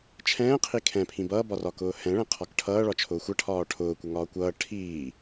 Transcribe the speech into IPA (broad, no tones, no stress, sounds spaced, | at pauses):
t͡ʃʰ ɛ̃ː qʰ i kʰ ɛ̃ pʰ ĩ b ʌː b ɒ r ɒ k ʊː h ɛ̃ ɭ ɛ̃ qʰ ɒ k ʈʰ ʌː ɭ ɒ t͡ʃʰ ʊː xʷ ʌ ʈʰ ɒː ʈʰ ʊː kʷ ʌ ŋ ɒː kʷ ʌː ʈʰ iː